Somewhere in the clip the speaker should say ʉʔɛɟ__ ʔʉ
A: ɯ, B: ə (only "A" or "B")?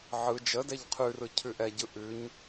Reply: A